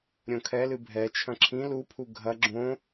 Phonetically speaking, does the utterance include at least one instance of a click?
yes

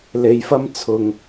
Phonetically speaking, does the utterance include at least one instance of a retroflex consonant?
no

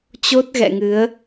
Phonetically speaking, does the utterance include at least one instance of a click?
no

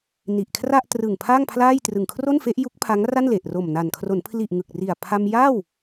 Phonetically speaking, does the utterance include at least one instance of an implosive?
no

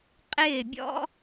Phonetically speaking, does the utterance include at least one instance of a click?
no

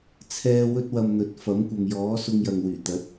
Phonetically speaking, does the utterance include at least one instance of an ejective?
no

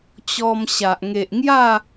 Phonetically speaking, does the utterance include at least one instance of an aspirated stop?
no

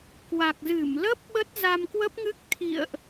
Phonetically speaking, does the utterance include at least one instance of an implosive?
yes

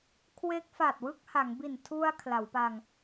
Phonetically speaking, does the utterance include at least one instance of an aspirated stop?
yes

